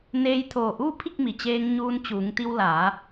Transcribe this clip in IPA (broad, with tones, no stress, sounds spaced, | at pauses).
n eː˧ j t̪ʰ oː˧˩ ʔ uː˥˨ pʰ i˥˨ k̚ m i˩ t͡ɕ eː˧ ŋ ɲ uː˧ n t͡ɕ uː˩˧ ŋ t̪ i˧ w l a˩˧